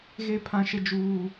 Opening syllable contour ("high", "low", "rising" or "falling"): high